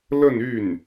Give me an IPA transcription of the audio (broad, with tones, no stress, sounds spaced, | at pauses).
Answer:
l ə˥˧ n y˥˩ n